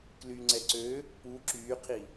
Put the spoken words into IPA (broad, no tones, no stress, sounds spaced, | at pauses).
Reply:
k l y ŋ͡ǀ ɛ ǀ ø | p u ǁ yː qʰ i